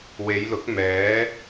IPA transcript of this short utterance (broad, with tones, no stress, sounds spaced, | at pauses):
w e˨˧ j l ʊ˨˥ k̚ m ɛː˨˥